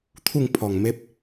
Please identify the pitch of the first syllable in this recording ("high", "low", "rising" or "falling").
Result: falling